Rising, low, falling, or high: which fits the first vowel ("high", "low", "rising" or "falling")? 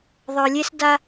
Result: low